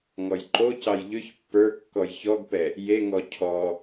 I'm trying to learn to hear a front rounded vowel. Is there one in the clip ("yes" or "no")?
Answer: yes